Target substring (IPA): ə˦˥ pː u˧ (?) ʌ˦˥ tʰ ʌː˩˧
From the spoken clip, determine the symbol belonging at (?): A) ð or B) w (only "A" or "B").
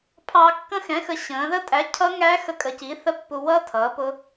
B